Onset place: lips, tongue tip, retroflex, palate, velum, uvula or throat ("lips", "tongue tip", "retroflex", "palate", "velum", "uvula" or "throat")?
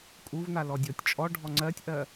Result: velum